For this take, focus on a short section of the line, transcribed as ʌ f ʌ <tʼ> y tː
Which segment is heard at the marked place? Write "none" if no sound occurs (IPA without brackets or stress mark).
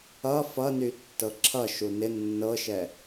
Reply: n